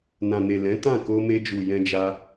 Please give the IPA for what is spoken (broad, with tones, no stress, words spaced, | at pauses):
nã˨ne˨ lɛ̃˨˦ tã˦˨ko˧me˧d͡ʒu˨ jɛ̃˧d͡ʒa˧